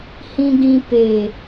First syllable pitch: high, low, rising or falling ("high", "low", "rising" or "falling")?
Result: low